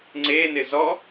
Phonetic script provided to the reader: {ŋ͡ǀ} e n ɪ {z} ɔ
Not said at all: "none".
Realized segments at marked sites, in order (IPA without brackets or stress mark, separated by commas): ŋ͡ǀ, z